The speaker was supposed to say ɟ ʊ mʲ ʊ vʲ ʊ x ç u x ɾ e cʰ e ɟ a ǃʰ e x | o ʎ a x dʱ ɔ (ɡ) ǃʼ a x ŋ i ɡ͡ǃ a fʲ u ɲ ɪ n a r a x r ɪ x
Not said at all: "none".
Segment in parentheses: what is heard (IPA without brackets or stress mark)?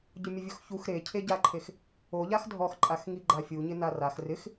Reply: x